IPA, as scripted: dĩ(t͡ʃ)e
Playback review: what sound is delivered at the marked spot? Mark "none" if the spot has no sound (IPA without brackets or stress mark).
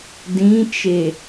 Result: t͡ʃ